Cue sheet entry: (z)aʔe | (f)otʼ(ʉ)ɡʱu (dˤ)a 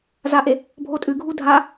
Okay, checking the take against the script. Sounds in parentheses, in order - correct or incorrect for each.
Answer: correct, incorrect: bʱ, correct, incorrect: dʱ

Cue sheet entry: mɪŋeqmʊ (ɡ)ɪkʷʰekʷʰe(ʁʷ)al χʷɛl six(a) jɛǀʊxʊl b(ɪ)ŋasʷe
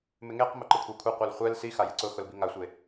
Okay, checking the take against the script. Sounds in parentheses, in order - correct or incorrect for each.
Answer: incorrect: ǃ, incorrect: qʷ, correct, incorrect: i

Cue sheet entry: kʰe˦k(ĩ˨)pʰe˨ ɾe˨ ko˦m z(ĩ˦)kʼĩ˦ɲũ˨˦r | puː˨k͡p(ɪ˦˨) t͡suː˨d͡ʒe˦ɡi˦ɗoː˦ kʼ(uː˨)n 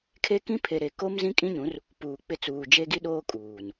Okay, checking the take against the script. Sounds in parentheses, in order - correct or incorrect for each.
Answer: incorrect: ĩ˦, correct, correct, correct

